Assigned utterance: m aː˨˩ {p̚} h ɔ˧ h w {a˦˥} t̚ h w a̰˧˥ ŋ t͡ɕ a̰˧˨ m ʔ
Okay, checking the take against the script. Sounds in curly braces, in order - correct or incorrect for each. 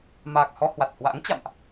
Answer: incorrect: k̚, incorrect: a˨˩

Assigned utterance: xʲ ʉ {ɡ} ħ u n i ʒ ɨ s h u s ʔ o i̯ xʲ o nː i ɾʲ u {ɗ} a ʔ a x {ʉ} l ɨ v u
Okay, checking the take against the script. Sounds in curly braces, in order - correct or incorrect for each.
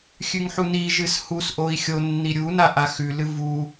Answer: incorrect: ŋ, incorrect: n, correct

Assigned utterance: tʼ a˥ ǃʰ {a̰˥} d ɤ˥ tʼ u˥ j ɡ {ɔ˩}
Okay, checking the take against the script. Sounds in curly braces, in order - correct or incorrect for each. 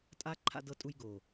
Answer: correct, incorrect: o˩

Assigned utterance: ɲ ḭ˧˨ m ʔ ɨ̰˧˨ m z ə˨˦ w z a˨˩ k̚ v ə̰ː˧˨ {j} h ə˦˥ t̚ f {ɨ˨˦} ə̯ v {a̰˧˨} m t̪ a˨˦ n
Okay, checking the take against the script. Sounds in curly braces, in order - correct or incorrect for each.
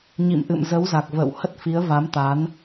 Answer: incorrect: w, incorrect: i˨˦, incorrect: a˨˦

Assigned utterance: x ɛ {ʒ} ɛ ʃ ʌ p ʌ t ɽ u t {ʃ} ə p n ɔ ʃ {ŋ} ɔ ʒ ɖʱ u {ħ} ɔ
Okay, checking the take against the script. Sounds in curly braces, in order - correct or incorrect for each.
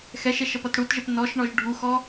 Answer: incorrect: ʃ, incorrect: ʒ, incorrect: ɳ, incorrect: x

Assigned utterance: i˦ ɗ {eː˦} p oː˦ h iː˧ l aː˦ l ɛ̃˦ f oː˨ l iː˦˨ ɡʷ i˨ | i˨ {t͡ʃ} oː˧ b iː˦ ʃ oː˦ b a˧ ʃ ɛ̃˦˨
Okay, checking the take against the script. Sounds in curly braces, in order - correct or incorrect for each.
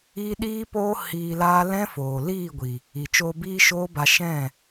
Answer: incorrect: iː˦, correct

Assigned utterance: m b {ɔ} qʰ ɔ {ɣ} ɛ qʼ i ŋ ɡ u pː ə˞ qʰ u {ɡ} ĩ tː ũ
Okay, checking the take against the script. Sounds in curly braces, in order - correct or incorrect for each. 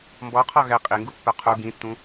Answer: correct, correct, correct

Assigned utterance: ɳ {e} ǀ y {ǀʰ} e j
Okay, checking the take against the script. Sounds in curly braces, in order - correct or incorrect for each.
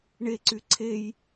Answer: correct, correct

